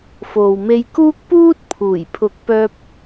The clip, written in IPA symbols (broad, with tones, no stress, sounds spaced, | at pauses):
f o˨ w m e˧ j k uː˥ k̚ p uː˥ t̚ pʰ uː˨˩ j pʰ ʊ˨˥ k̚ p œː˧ p̚